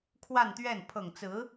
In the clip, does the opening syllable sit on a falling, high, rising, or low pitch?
falling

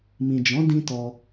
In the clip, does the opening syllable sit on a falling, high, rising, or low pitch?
low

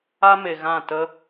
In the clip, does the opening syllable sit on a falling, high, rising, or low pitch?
high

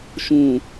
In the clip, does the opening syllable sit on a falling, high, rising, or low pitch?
low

